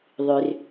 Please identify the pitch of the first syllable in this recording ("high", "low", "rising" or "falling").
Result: low